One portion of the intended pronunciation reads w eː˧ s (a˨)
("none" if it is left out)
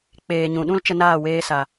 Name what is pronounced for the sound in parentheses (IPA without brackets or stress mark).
a˨